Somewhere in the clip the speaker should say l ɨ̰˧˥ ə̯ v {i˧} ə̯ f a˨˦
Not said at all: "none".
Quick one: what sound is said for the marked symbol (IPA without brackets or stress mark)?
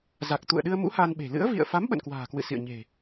ḭ˧˨